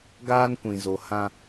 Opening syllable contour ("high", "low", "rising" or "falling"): high